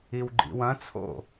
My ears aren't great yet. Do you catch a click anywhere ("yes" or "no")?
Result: yes